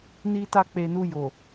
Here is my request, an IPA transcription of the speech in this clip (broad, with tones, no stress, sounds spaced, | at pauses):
n i˦ t a˦ k͡p e˧ n u˧ j o˨